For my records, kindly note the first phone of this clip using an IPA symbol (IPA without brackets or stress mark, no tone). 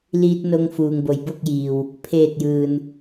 l